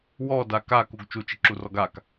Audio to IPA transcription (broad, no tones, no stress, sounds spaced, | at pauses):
w ɔ d a k a k u ɡ t͡ʃ u t͡ʃ ɪ ǁ u r ɔ ɡ a k